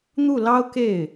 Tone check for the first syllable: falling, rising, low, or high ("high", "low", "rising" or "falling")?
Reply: falling